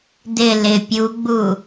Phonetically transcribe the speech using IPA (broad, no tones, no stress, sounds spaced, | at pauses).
d ɪ l ɪ pʲ u ɡ͡b u